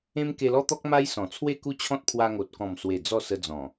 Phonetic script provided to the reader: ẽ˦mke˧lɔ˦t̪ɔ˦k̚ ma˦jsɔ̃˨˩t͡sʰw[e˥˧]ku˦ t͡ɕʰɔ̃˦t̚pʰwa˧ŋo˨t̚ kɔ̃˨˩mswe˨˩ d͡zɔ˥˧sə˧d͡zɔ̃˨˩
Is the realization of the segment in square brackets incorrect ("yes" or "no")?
no